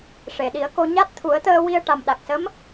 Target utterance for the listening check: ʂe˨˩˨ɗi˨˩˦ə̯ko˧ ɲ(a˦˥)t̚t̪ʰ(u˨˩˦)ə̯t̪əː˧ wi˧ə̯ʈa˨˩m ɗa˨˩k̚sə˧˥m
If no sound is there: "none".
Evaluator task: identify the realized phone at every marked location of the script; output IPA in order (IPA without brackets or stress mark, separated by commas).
a˦˥, u˨˩˦